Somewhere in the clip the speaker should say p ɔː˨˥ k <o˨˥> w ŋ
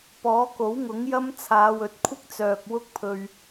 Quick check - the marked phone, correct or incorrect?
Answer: correct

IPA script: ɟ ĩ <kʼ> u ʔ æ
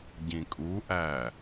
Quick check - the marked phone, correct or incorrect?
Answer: correct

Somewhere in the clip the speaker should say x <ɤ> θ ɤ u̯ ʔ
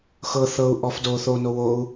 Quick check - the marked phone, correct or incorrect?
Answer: correct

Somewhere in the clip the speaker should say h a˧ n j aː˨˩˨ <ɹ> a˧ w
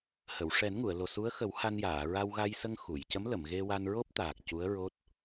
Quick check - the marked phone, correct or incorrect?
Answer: correct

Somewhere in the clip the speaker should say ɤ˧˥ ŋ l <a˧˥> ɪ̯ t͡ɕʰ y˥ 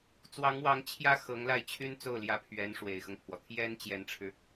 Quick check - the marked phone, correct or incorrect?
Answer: incorrect: a˥˩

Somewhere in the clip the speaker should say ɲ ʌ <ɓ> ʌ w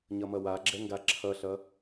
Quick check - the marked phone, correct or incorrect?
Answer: incorrect: m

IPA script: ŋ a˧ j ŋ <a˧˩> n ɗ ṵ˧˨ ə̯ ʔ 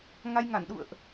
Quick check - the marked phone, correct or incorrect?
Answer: correct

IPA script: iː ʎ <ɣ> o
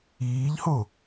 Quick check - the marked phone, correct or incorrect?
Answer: incorrect: h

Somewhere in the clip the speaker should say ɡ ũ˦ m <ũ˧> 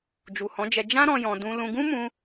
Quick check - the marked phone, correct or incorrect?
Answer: correct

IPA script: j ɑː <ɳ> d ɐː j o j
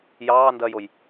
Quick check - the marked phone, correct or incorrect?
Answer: incorrect: n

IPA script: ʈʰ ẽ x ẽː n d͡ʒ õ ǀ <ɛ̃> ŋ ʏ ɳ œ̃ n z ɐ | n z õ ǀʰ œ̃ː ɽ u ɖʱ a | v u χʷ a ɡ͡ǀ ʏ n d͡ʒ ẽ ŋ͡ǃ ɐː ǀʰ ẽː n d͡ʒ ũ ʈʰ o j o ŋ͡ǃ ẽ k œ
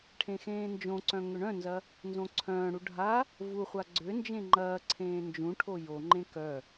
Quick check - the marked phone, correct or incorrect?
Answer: incorrect: œ̃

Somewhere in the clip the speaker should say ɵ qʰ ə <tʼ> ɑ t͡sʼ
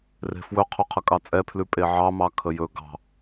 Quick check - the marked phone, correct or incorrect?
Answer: incorrect: kʼ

